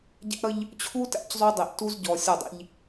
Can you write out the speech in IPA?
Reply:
ɟæ̰˦ɾʌ˦ʎ | t͡ɕʰu˦tæ̰˦c zˤu˦dˤi˨ʔ tu˦zɟɔ˨ sʲɔ˦˨dˤḭ˦ʎ

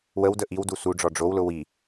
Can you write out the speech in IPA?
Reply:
wəwdə ʔiw dusuɖ͡ʐɔ ɖ͡ʐowlʊ wi

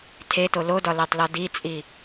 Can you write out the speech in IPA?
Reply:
tʰeto lodɒlætˤlɒ dit͡sʼi

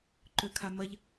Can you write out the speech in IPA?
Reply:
ǃøkʰamɐʎ

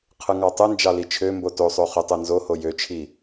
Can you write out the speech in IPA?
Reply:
qʰɯŋɑtˤɯnd͡ʒɑ lit͡ʃʰømbo tosˤo χytˤɯnzoho jøt͡ʃʰi

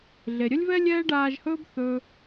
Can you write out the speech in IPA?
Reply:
ɮe˨ɾʲə˦lʲvɛ˦ lʲɛː˥ɖaː˦ʒhɵː˥b θɵ˥

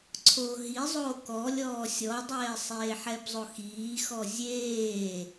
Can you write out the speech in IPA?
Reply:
ǀʰoːɦizˤoː kɔ lʲɔːsʲɔdˤɛː sˤeːħɛbzˤoxiː xɔzʲeː

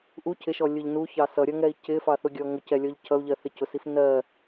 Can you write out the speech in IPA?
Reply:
ʔu cʰɪʃɔ lʲʊʎ nuçɑ sʌɾʲʌŋɛi̯ cɪfɑθʊɡʲɔ ŋʊcɛlʲɔʎ cʰʌu̯ʎɜ θɪcʊsif nɜ

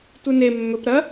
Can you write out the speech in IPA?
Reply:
tʷɨne mːɵp ɾɐ

